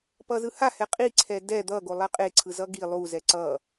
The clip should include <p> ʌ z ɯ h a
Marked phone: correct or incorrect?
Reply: correct